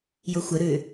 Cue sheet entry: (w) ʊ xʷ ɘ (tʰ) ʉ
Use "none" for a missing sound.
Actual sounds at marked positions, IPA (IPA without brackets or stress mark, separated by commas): j, ɾ